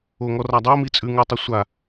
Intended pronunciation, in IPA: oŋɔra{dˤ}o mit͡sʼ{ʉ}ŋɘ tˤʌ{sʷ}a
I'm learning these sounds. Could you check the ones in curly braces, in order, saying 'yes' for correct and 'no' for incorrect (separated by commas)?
yes, yes, yes